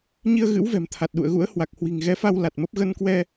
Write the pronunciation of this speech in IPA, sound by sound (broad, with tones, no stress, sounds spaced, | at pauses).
ɲ i˧ ə̯ ɣ ɨ̰˧˥ w v ɛ̤˨˩ m t̪ʰ a˨˩ t̚ ɗ ṵ˧˨ ə̯ ɣ ṵ˧˥ ə̯ h w a˨˩ k̚ h w i̤˨˩ ŋ ɣ ɛ˨˦ f a˧ w l a˨˩ t̚ m ə˦˥ p̚ ɣ ə˧ n k w ɛ˧